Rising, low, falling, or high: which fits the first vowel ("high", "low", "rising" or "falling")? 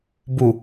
low